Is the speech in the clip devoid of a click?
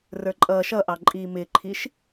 no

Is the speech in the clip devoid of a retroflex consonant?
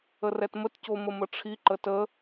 no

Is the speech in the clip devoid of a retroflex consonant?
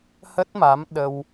yes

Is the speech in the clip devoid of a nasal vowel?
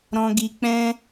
no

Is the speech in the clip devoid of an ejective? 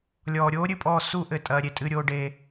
no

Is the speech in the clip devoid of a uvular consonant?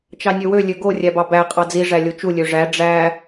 no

